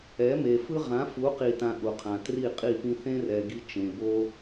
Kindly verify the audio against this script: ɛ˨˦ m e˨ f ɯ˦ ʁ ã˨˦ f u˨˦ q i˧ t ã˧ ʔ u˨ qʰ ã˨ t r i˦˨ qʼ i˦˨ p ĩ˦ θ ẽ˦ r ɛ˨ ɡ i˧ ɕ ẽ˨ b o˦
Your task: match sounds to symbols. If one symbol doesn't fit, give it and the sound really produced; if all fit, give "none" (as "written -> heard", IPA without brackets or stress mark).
ɕ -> t͡ʃ